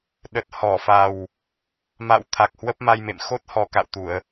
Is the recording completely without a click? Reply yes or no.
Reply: yes